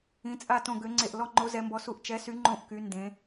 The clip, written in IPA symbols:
ĩ˧˥t͡sʼa˥˧ tõ˥˧ ɡø˧˥ŋ͡ǀe˥˧ʔ lɔ˥˧ŋ͡ǃo˧˥ zɛ˧˥mbɔ˧˥su˥˧ʔ t͡ʃɛ˧˥sy˧˥ ŋ͡ǃõ˥˧ʔky˧˥ ndẽ˧˥

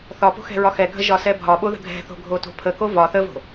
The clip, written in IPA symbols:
θɒpo̤ xɛ̤ɹɒxɛɡʱə ʒɒsɛbʱɒɓo ðə̤ɡʱɛ̤θo̤ ɡʱoto̤pʰəko vɒ θəvo̤

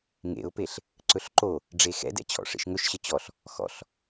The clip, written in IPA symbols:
ŋḛʊ̯peɬ | ǀɵɬǃo | ɖ͡ʐexɛ̰dɛ̰ t͡ɕʰɔ̰ʂḛʃŋɵʃɕə t͡ɕɔɬ | xɔ̰ɬ

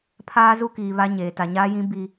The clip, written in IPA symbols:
pʰaː˦zu˦kiː˨ βa˦ɲeː˨ ta˨ɲaː˦jĩ˦ bi˦

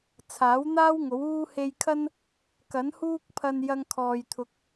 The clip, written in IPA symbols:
t͡sʰaː˨˥wn̪aː˥w ŋo˨˥wuː˥ he˧jkʰɐ˥n | kɐ˨˥nhuː˥k̚pʰɐ˧n jɐ˧ŋkʰɔː˨jt̪ʰʊ˨˥k̚

